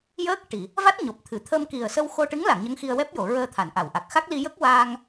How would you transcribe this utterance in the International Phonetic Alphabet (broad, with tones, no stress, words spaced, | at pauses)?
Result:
jəː˦˥k̚ ʈi˨˩˨ | va˦˥t̚ɲo˨˩p̚t̪ʰɨ˨˩˨ t̪ʰə˧mki˨˩ə̯sə˧w xo˧ʈɨ˧˥ŋla˨˩˨ŋ ɲə˧˥ŋxi˧ə̯wɛ˦˥p̚jo˨˩˨ ɹəː˧t̪ʰa˨˩˨nʔa˨˩˨wʔa˨˩k̚ xa˦˥k̚li˧jə˦˥k̚ waː˧ŋ